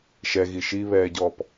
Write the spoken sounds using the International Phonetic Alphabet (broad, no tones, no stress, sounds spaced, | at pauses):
ʃ ɛ ɣ i ʃ i β ɛː ɟ ɔ p